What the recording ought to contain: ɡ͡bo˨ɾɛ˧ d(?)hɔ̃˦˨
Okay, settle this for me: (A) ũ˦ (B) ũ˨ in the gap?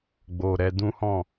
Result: A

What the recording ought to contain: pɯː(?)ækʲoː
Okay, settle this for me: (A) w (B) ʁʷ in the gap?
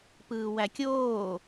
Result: A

